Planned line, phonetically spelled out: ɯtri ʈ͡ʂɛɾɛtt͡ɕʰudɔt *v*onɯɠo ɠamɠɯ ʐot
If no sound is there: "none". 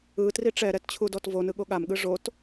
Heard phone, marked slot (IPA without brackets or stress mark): v